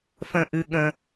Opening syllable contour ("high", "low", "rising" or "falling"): low